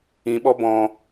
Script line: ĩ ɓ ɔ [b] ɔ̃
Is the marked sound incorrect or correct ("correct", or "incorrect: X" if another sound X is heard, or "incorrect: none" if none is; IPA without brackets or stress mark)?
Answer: correct